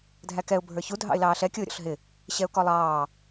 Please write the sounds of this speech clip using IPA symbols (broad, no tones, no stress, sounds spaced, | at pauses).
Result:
dʱ æ k ɛ ʊ̯ bʱ ə˞ ç u dʱ ɑ̰ ɪ̯ l ɑː ɬ ɛ kʲ ʊː ɾʲ ɔ̰ ɬ ɦ ɪ | ɕ ɛ ʊ̯ k ɔ lˠ ɑː